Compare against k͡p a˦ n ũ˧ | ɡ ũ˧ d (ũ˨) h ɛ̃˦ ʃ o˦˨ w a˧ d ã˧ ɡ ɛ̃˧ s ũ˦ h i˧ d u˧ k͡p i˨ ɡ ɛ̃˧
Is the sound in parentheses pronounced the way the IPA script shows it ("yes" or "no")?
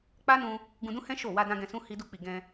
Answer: no